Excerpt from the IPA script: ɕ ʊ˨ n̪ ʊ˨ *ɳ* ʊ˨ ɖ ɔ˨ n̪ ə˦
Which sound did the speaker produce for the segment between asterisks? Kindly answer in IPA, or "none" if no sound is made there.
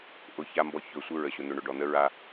ɳ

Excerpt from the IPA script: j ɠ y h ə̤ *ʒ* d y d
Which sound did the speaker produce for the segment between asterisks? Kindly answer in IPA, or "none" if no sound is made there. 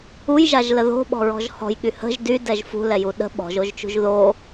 ʒ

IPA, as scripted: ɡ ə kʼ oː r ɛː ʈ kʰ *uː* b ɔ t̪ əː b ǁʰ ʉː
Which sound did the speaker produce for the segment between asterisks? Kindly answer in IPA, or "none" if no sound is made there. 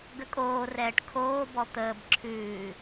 oː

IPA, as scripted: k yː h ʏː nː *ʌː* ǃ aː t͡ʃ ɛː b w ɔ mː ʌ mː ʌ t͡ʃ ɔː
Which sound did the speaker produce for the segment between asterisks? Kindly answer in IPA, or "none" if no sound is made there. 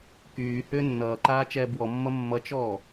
ʌː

